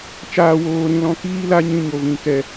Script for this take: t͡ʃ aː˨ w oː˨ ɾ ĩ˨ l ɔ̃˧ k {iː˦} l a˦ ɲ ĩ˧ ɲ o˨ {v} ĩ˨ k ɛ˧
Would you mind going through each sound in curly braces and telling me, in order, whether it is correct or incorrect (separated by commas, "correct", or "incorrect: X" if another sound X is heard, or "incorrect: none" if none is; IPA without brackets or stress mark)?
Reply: correct, correct